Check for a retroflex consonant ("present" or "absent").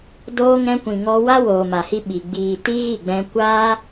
absent